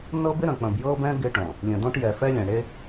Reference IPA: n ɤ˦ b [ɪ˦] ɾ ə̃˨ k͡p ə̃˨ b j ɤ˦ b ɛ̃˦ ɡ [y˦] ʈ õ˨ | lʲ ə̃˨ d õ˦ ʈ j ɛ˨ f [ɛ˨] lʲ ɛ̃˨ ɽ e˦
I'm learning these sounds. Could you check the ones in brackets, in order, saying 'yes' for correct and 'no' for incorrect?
yes, no, no

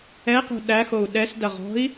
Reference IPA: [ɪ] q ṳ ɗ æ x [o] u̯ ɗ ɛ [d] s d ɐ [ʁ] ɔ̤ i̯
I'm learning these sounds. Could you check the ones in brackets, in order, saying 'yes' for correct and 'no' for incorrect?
no, yes, no, yes

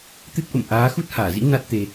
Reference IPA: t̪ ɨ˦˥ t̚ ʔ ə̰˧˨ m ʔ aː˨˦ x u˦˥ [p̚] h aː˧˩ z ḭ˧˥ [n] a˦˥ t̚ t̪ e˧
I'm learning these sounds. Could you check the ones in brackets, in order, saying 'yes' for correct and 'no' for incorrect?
no, yes

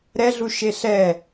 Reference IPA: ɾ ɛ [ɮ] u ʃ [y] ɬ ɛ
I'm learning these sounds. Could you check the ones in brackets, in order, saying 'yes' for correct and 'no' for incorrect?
yes, no

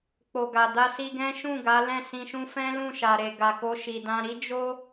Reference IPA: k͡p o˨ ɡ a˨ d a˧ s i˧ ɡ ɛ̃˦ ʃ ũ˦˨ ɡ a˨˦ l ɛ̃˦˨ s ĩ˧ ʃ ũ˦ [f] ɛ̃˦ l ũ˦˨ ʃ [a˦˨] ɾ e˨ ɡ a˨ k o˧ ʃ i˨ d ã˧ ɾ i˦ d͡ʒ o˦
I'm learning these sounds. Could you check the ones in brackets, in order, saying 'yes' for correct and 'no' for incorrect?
yes, no

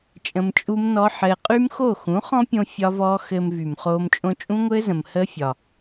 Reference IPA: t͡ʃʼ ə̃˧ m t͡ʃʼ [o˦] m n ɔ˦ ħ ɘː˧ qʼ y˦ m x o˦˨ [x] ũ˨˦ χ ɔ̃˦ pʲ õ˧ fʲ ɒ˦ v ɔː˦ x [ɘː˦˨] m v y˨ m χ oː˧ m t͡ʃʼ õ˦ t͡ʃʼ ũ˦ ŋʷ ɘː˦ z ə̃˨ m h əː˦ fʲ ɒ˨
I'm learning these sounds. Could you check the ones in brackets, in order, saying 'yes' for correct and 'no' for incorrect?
no, yes, no

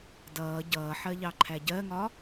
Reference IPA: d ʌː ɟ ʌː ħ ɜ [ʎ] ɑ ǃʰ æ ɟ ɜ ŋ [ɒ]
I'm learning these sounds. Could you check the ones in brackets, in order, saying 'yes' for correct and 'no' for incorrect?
yes, yes

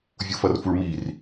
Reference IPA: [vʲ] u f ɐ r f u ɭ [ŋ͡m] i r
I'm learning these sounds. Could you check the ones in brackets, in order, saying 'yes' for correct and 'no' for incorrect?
yes, no

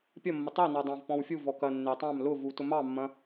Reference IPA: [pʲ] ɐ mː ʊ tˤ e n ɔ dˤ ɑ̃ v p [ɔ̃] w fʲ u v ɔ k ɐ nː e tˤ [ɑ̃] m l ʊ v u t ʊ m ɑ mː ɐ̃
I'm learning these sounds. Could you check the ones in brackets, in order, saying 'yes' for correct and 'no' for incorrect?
yes, yes, yes

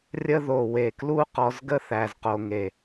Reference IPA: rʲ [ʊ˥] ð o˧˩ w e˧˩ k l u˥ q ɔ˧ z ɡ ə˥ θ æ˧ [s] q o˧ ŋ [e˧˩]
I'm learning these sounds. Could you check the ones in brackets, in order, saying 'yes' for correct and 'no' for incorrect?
no, no, yes

